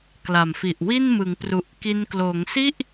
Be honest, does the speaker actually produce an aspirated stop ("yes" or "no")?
no